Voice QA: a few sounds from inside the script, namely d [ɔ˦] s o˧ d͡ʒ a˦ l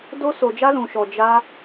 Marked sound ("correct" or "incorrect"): incorrect